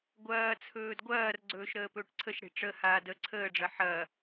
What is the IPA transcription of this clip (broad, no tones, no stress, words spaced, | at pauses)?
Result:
ɡʷɐː t͡sʰɵːdɡʷɐːrɡ͡ǀɵːʃ ɾəːpɵːʈǀʰəʃɽe̤ ʈ͡ʂəhaː də ǀʰəːɖ͡ʐɐ ħɐː